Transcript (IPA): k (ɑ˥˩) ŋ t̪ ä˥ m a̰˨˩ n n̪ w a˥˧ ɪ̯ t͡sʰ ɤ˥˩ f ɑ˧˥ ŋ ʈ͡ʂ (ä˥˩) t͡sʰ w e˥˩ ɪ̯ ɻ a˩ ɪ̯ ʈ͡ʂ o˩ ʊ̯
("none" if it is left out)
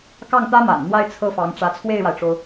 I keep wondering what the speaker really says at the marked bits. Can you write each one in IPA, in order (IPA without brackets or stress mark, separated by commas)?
ɑ˥˩, ä˧˥